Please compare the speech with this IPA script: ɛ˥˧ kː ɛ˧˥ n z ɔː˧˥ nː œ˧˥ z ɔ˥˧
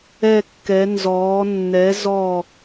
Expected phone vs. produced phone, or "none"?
œ˧˥ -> ɛ˧˥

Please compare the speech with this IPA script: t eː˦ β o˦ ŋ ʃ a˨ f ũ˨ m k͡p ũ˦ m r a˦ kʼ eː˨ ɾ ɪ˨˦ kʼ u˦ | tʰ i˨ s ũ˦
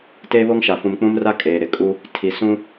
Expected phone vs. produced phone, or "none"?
none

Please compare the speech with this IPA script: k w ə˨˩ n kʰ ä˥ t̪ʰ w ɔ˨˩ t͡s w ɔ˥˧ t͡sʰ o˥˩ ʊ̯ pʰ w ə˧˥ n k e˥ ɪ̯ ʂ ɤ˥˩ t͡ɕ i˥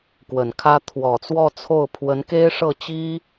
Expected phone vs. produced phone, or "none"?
none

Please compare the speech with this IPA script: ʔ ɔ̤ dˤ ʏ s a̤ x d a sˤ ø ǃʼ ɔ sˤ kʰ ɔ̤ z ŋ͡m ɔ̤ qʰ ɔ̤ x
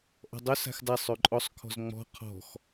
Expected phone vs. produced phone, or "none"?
none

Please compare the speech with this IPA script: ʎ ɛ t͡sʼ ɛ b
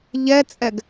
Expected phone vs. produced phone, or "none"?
b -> ɡ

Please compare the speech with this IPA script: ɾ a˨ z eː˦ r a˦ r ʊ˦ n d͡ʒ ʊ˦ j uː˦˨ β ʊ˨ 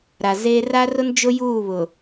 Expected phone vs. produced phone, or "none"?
none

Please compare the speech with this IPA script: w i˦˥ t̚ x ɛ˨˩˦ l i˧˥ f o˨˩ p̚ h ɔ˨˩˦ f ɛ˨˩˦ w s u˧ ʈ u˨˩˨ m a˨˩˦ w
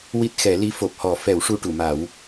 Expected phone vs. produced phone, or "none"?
s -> ʂ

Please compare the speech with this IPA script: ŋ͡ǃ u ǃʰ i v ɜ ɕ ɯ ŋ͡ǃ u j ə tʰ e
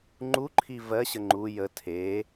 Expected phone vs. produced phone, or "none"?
ɯ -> ə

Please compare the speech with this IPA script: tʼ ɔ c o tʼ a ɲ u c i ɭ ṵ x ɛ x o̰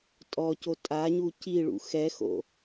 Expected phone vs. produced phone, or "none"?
none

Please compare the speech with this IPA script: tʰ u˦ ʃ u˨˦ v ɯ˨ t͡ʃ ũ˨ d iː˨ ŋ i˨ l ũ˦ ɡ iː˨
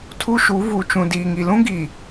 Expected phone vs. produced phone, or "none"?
ɯ˨ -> u˨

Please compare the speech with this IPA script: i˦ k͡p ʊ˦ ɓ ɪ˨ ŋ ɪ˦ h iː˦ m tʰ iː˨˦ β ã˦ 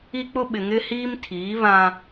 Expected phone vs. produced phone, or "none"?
none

